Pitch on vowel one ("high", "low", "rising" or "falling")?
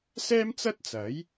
high